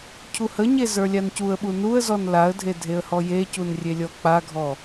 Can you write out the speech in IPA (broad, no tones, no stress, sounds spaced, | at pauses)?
cʰ u h ə ɲ e z ə˞ lʲ a n c u ə̯ ɓ u n u ə̯ z ɔ n l a ə̯ dʱ e dʱ e ə̯ h ɔ j e c u n rʲ e lʲ ɔ k͡p a ɡʱ ɔ